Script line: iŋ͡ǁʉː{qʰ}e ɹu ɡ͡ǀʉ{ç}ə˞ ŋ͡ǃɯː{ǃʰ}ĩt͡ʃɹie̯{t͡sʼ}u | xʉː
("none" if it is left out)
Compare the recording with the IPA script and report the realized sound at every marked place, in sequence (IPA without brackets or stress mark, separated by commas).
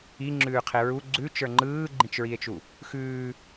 qʰ, t͡ʃ, ɡ͡ǃ, t͡ʃ